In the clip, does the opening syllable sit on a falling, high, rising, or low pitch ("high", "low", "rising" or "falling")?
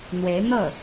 rising